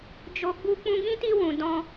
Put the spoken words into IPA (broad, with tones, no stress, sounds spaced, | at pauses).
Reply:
d͡ʒ o˧ ɡ͡b u˧ k͡p ũ˧ ɡ ĩ˦ t i˧ w ũ˨ d ɔ̃˧